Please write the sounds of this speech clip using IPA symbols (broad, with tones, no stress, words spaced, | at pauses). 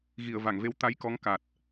ɣi˧˩ə̯ va˧˩ŋve˧w t̪a˨˦jkɔ˨˦ŋ ka˨˩t̚